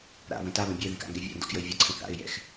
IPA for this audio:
ɾa̰βə̃ taβə̃ bʲɛðɛ̃ka̰ŋɡɛ vʲa̰ndɔ̰kjəɪ̯ vʲəǀʰə̃ θa̰ɪ̯ jɛ̰x

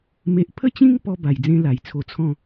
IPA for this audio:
me˦ʔ pʰə˥˧t͡ɕĩ˦ŋpɔ˧ ba˨˩j d͡zẽ˦la˨˩jt͡sʰo˧t͡sʰɔ̃˥˧

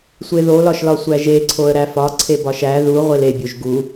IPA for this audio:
sʷeðolɒʃlɒ sʷæʒeǀʰoə̯ ɾæfɒ ǀʰebɒʃæ ðu ʁʷelebʲoʒ ɡu

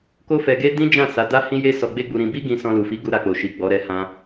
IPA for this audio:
ko˦fɛ˧ɡe˦ dĩ˦d͡ʒã˦˨ sa˨˦da˦hĩ˦je˦ sɔ˧ɡ͡be˦ɡ͡bu˧ɾĩ˧ bi˦ ɡĩ˧ sɔ̃˧lu˨fi˨˦ ɡu˧ɾa˨k͡po˨ ʃi˨ ɡ͡bɔ˨˦ɾɛ˧hã˧

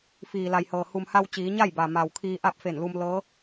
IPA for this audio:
fiː˩la˩jhɤː˩ hu˩mha˧w t͡ɕiː˩˧ɲa˥˨j ba˩ma˩wkʰiː˧ ʔa˥˨p̚fe˧˩nlu˧m lɤː˧˥

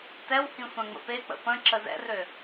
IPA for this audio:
tɛwhĩ sʷɛ̃ŋ͡mə̰pek͡pə̰ pə̃ ǁəzɛ̰rø

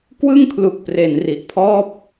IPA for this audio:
kwɯ˥˩ŋkʰlu˨˩k̚pre˩˦n ri˨˩ʔpʰɔː˥˩p̚

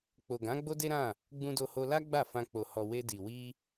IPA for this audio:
k͡po˨ɡã˨˦ ɡ͡bo˦de˦ɾã˦˨ | ɡ͡bũ˧do˧ho˧la˦ ɡ͡ba˦˨fã˧ k͡po˨hɔ˨ we˧di˨ wi˧

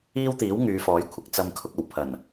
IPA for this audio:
iː˥wt̪iː˨˥w ŋyː˨˧fɔː˨˥jkʷʰɪ˨k̚ t͡sɐ˧mkʰʊ˧k̚ ɐ˨˩wpʰɐ˨˩n

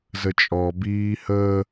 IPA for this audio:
zət͡ʃʼɔbiː hə

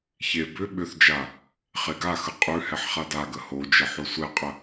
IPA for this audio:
çe bʏ ɓʏθd͡ʒa | χeɡaxə qʼʉhɛħ χadaɡə hod͡ʒə ħosʷɛqʼə

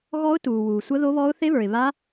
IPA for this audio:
ɣɔ˦˥ʊ̯tuː˨wuː˨ sʷə˦˥ðo˦˥βɔ˦˥ʊ̯ θe˦˥βə˞˨ɪ̯ βa˦˥

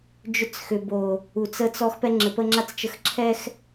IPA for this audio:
d͡ʒʏ˦t͡sxʏ˨bo˨ | u˨t͡sə˦t͡sɔ˦x pɛ˦ŋ͡ǁɘ˨pə˦ŋ͡ǁa˦t͡s t͡ʃə˨x ǁʰɛ˦x

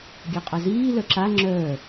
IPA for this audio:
ɡʲaqʼaziː lœǁa ŋ͡ǁœː

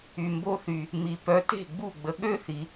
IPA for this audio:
y˨mbo˦˥θy˨ | mi˨˩˦ pœ˨˥te̤˥˩ɡ͡bu˥˩ ɡ͡bə˨ɠø˥˧θi˨

